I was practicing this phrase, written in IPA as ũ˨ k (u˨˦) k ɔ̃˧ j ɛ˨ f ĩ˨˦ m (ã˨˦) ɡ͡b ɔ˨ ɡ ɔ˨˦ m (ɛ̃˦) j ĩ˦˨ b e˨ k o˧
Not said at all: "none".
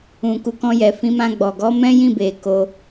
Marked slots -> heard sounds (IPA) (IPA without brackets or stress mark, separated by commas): u˨˦, ã˧, ɛ̃˦